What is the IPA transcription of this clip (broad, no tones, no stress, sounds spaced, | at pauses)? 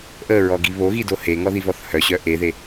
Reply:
ʔ ə ɹ ɔ ɡ i β o ɣ i d o h e ŋ ɔ ð i v ɔ θ h œ ɕ œ ʔ e ð e